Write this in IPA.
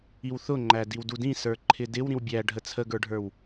i w θ ʊ ŋ͡ǃ æ d i w d u d ĩ s ə˞ ǃʰ ɪ d ɪ w ɾ ĩ w bʲ æ ɖʱ ə t͡sʰ ə ɡ ə˞ ɖʱ ə˞ w

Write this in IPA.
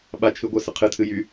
ɓ a t͡ʃʰ ɨ ɡʷ ɛ s ə qʰ ɨ tʰ ɨ j y

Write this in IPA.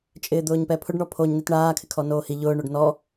t͡ʃʼ ɪː d̪ ʊː ɲ p ɛ pʰ ʊ ɖ ɳ ɔ pʰ o ɲ n i t ɳ aː kʰ ɪ kʰ ɔ n oː h i ʎ ʊː ɳ o ɖ n ɔ

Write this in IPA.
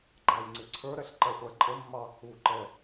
ɡ͡ǃ ɑ j ŋ͡ǀ ɪ ǀʰ ə˞ ɾ ɛ ɬ ǃ ɛ χʷ æ ǃʼ ə mː ɑ | u ǃ ɛ

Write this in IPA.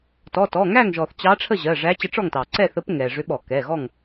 t ɔ˩˧˩ t ɔ˩˧˩ ŋ æ˥˨ ŋ ʒ ɔ˩ θ t͡ɕ ɑ˧˥ ʈ͡ʂʰ ə˥˨ ʑ ɜ˩˧˩ ʐ æ˧˥ t͡ɕ ə˧˥ ʈ͡ʂ ɔ˥˨ ŋ t ɑ˩ ǀ ɛ˥˨ θ ə˧˥ p ŋ ɛ˩ ʐ ʏ˧˥ ɓ ɔ˧˩˧ k ɛ˩˧˩ ɣ ɔ˥˨ ŋ

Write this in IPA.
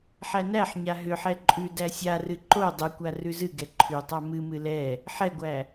ħ æ n æ ħ ɲ a ɦ ʏ ħ ɛ ǃʼ ʉ d æ sʲ a r ɨ ǃ o dˤ ɨ kʷ a r ʉ z ɨ ɡ ɛ ǃʰ ʉ tˤ a m ɨ m ɨ l ɛ | ħ ɛ ɡʷ æ

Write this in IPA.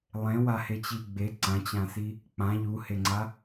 lˠ ẽ w a h e t͡ɕ i ɡ͡b e ǀ ã t͡ɕ ã s i | k͡p ã ʎ u h e ŋ͡ǀ a

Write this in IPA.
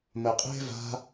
m ə qʼ e̤ v a̤

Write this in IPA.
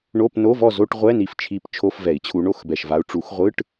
ɳ o˧˥˧ p n o˧˥˧ v ɔ˥˨ z o˧˥˧ ʈ ʁʷ ɛ˧˥˧ n i˨˩ f t͡ʃʰ i˨˦ p t͡ʃʰ o˧˥˧ f v ɛ˨˩˦ i̯ t͡ɕʰ u˨˦ ɳ o˧˥˧ x b ɛ˨˩ ʃ v a˨˦ u̯ ʈ͡ʂ u˨˩˦ x ʁʷ ɯ˧˥˧ ʈ

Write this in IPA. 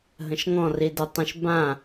ɦ ə̃ ʃ ŋ ɔ̃ r i d ə tˤ ə̃ ʃ b ã

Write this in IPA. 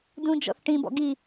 d ũ d͡ʒ ɔ̰ θ ʈ ĩ b ɔ̰ ɡ i

